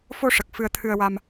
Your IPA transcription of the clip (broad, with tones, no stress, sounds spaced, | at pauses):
f o˧ ʂ ə˨˩ k̚ f ɨ˧ ə̯ t̪ʰ ɨ˧ ə̯ w a˧ m